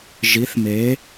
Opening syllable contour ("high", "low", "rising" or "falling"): rising